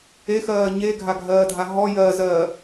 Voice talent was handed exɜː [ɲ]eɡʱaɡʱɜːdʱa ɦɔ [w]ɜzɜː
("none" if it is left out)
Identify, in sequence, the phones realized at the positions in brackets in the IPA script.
ɲ, j

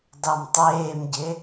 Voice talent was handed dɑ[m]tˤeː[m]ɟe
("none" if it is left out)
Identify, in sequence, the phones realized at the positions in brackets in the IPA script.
m, m

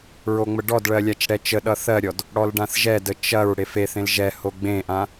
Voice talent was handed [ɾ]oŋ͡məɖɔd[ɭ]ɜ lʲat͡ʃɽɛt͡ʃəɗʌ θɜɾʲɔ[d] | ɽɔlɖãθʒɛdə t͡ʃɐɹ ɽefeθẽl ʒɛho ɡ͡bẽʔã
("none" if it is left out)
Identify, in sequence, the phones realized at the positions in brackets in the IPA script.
ɹ, ɭ, d

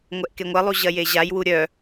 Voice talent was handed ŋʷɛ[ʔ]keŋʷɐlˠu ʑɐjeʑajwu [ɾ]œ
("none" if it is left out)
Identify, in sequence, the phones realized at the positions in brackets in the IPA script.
ʔ, ɾʲ

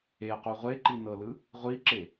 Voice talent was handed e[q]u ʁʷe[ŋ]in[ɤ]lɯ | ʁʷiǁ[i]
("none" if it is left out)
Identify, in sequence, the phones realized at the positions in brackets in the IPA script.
q, ǃ, ɤ, e

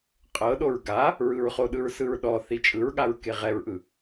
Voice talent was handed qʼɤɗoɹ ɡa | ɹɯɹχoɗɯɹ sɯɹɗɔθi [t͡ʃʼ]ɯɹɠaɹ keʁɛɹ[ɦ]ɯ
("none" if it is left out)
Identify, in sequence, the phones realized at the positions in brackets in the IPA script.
t͡ʃʼ, ʔ

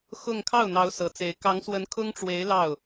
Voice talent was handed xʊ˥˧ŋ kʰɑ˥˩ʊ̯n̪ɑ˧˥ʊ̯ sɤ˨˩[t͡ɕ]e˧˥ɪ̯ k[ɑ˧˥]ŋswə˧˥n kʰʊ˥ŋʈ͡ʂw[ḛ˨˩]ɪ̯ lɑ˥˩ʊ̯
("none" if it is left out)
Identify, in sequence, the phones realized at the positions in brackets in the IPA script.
t͡s, ɑ˧˥, e˧˥

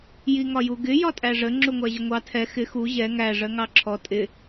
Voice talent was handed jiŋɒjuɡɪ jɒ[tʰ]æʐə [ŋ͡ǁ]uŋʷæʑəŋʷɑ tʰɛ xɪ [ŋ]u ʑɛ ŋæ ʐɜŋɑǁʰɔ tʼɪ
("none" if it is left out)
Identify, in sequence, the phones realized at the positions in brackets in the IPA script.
tʼ, ŋ͡ǁ, x

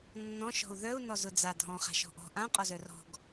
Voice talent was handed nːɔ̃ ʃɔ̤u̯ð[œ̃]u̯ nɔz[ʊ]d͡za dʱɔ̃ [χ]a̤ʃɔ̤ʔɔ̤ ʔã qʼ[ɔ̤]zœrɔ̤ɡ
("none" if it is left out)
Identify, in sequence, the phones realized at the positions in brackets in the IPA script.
œ, ʊ, χ, ɔ

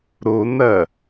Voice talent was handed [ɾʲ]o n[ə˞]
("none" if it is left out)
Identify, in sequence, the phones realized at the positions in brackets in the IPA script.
ɾ, ɐ

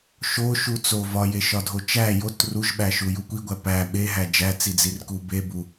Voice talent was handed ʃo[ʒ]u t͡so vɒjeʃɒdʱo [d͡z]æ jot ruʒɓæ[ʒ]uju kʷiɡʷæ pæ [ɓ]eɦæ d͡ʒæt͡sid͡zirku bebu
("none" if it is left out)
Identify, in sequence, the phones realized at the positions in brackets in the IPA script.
ʃ, t͡ʃ, ʃ, ɓ

